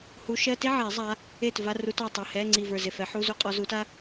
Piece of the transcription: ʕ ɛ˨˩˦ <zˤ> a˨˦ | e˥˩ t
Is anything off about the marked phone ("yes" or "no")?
no